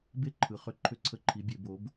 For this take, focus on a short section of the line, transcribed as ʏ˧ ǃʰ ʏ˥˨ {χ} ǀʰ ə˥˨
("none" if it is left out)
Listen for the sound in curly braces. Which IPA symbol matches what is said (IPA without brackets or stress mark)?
none